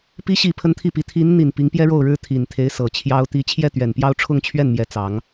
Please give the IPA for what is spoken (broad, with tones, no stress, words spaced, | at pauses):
pi˧˥ɕi˨˩ pʰə˥nt̪ʰi˥˩pi˧˥ t̪ʰi˧˥nn̪i˨˩n pi˧˥ŋpjɛ˥ɻo˥˩ʊ̯ɻɻ̩˥ t̪ʰi˨˩nt̪ʰe˧˥ɪ̯ sɤ˨˩t͡ɕʰjɑ˥ʊ̯t̪i˥˧ t͡ɕʰjɛ˥˩t̪ɥɛ˨˩npjɑ˥˧ʊ̯ ʈ͡ʂʰʊ˥˧ŋt͡ɕʰɥɛ˥˩nmjɛ˧˥ t͡sɑ˧˥ŋ